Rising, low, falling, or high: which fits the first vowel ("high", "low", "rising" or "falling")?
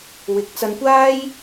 rising